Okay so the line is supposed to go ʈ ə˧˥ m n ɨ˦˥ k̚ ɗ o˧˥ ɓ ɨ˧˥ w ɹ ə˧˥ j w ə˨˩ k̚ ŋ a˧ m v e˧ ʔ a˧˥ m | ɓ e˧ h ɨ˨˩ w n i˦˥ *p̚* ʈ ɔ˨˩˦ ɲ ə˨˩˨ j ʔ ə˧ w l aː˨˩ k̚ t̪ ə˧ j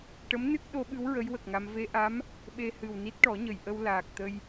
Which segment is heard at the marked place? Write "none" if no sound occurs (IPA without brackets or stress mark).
t̚